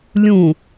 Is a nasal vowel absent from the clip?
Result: no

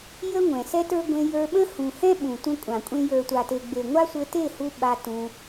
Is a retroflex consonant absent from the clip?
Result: yes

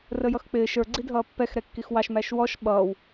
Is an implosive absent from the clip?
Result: no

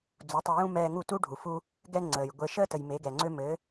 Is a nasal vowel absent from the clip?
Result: no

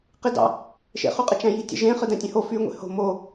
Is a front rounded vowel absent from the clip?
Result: no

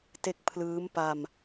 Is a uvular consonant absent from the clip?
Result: yes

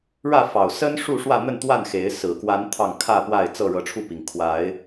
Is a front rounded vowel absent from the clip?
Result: yes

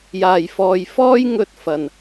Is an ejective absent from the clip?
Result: yes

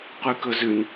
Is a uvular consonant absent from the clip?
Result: no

